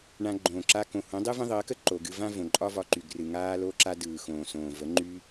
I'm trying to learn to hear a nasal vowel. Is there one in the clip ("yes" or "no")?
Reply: yes